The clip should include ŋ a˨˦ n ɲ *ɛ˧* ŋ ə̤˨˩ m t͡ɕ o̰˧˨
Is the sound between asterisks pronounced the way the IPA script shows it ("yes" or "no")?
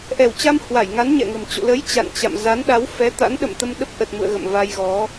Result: no